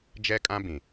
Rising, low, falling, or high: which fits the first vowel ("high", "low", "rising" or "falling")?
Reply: high